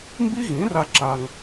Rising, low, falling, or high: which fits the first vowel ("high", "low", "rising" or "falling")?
high